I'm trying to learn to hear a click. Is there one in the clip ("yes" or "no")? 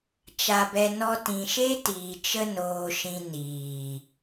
no